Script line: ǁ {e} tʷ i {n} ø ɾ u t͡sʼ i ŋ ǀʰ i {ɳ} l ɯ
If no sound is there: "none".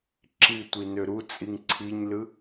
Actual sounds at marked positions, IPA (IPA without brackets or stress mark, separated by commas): i, n, ɲ